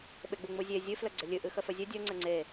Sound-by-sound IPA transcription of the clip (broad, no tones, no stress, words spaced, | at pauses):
ɓeɡ͡buŋ͡muzʲe zʲɨ fləɡ͡ǀəlʲɨ ʔɨxəfəzʲə dʲə ŋ͡ǀəŋ͡ǀe